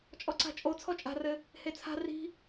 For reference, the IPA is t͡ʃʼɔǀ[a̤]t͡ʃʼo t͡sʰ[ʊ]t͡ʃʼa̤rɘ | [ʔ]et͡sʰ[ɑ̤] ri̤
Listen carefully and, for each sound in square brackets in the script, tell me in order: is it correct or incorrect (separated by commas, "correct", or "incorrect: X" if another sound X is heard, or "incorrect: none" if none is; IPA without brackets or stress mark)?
correct, incorrect: ɔ, incorrect: h, incorrect: a̤